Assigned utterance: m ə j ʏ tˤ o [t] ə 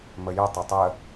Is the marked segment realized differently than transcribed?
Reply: yes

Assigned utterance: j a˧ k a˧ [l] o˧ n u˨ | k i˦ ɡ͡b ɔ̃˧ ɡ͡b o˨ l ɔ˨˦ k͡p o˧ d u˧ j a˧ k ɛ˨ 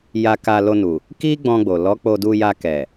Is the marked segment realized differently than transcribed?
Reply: no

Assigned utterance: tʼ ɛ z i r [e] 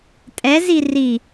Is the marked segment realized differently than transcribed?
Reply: yes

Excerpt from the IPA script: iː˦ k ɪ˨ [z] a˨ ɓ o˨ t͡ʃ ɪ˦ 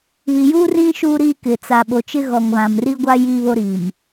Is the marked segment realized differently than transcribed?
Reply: yes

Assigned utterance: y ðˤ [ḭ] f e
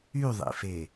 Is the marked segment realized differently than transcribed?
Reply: no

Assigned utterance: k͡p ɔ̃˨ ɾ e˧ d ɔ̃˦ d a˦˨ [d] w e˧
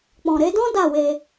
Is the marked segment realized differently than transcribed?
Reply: yes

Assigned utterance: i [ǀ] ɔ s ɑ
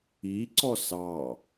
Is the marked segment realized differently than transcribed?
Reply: no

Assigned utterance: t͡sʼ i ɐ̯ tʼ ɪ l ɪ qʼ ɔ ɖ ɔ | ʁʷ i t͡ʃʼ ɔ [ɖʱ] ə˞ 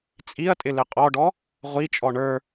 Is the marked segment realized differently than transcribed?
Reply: yes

